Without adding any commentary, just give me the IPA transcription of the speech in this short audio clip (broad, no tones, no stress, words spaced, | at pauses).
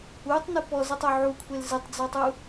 utˤnɨ pɔzetˤu ʕukʷʰel zɨtˤd͡zɔtˤu